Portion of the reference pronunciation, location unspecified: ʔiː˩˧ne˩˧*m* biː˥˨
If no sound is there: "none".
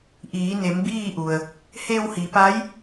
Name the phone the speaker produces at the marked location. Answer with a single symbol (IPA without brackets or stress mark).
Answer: m